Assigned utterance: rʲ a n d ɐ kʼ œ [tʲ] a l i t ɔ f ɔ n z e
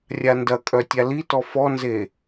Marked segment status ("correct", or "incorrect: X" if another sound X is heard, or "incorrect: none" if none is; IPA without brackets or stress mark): correct